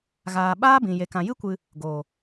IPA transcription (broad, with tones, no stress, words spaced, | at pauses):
ɣaː˨ ɓaː˦bĩ˨je˨ kã˨jɨ˦kʷɨ˧ | ɡoː˨